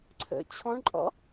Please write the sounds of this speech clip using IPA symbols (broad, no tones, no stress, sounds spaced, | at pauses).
ǀʰ ə̰ t͡ɕʰ ɔ̃ ɳ ǃʼ ɔ̰